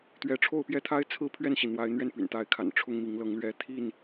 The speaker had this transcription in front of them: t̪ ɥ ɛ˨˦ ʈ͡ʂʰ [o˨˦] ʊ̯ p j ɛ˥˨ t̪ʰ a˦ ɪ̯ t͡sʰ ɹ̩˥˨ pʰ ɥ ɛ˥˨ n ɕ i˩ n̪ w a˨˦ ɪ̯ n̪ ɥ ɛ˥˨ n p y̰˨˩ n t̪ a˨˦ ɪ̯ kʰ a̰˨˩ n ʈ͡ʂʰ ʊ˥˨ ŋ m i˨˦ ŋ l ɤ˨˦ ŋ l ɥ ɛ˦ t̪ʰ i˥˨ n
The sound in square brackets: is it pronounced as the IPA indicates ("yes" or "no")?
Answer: no